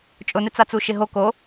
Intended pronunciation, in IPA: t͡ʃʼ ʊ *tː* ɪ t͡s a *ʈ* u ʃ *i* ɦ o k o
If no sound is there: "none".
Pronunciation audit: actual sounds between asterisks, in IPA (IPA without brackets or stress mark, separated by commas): n, t͡s, ɪ